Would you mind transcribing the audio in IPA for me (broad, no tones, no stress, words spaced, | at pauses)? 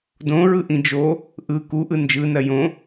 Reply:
dõɹɯʔĩ d͡ʒo | ʔɯ kuʔɯ nd͡ʒɯnɜ jõ